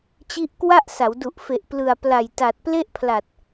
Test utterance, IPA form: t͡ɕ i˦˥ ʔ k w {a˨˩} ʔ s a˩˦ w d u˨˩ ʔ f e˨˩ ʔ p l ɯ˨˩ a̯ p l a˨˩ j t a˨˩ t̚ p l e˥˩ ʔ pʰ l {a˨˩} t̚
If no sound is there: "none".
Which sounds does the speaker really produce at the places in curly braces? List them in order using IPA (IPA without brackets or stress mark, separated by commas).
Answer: a˥˩, a˨˩